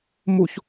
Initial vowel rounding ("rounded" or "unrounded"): rounded